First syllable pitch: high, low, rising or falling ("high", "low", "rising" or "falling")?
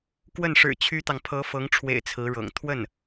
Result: falling